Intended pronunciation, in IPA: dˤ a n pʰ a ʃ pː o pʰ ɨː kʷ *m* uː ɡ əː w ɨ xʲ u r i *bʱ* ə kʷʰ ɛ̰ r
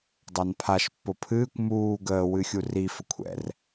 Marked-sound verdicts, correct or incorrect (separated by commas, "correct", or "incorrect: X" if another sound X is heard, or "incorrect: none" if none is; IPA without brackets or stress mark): correct, incorrect: f